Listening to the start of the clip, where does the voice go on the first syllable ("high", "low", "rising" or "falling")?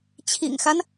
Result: low